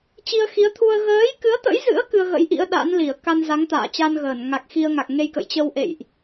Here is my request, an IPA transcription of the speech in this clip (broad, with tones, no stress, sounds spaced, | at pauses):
t͡ɕ i˧ ə̯ x i˨˦ ə̯ t̪ʰ u˧ ə̯ ɣ əː˨˦ j k ɨ˨˦ ə̯ t̪ ə̰˧˥ j z ɨ̰˧˥ ə̯ k ɨ˧ ə̯ ɣ ə̰˧˥ j ʔ ḭ˧˥ ə̯ ɗ a̰˧˥ n l i˧˩ ə̯ k a˧ n z a˨˦ ŋ t̪ a̰ː˧˨ t͡ɕ a˧ n ɣ əː˧˩ n ŋ a˨˩ k̚ x i˧ ə̯ ŋ a˨˩ k̚ ŋ e˧ j k ə̰˧˨ j t͡ɕ ə˧ w ʔ ḛ˧˨ j ʔ